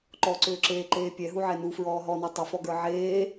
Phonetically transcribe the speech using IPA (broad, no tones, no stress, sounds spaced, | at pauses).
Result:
ǃ ɔ ǀ ʏː ǁ eː ǃ eː pʲ ɛ ɦ u ʕ ɛ n u f ɹ ɔː ɦ ɔ n ɔ tˤ ʏ f ɔ ɡ ə˞ ʕ eː